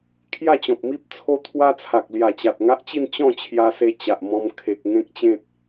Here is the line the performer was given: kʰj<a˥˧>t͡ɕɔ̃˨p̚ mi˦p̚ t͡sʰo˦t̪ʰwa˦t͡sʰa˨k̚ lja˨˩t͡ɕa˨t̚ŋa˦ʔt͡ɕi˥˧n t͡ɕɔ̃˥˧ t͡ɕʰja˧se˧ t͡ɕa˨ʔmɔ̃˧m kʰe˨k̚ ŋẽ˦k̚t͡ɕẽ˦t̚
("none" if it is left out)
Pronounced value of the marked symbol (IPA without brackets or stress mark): a˥˧